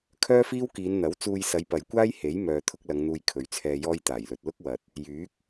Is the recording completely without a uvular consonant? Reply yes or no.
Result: yes